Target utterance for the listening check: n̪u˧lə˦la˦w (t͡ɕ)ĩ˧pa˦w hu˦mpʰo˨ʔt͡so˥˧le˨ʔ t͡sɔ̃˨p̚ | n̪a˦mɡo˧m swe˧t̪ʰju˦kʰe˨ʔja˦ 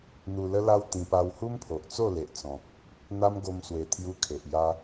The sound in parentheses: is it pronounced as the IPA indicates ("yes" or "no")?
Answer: no